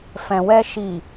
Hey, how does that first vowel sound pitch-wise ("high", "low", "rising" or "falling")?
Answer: low